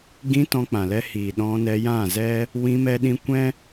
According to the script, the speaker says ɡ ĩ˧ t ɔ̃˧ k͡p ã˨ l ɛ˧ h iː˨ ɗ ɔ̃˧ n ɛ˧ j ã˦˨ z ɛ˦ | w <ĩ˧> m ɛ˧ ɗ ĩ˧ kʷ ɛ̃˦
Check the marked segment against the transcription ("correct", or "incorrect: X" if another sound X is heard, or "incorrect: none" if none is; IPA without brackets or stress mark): correct